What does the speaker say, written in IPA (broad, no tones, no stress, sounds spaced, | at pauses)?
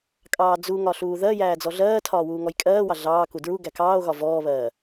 kʼ ɑː d͡z u ŋ ɒ ɬ uː ð ɜ j æː d͡z ɔ ɮ ɜː tʰ ɒː w uː ŋ ɔ j kʼ ɜː w ɑ ɮ ɑː k u d ɹ u ɡ æ k ɑː o̯ ɣ ɒ v ɔː β ɜː